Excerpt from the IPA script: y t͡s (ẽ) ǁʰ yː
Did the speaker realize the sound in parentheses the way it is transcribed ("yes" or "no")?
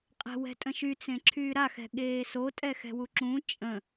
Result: yes